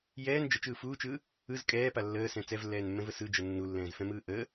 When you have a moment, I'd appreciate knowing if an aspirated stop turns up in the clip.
no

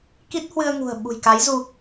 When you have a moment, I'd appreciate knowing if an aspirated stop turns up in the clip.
no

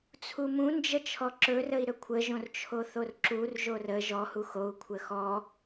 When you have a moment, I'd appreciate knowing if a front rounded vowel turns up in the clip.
no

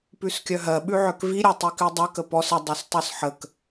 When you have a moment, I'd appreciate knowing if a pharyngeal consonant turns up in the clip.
yes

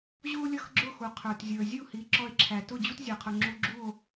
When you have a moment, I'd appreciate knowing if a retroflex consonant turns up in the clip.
no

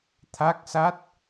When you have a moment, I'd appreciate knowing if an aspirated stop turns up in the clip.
yes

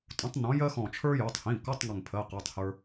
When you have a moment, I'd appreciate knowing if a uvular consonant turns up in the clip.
yes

